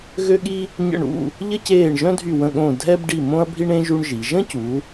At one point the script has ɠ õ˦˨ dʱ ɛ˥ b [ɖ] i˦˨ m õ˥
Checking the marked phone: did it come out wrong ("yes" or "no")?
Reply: no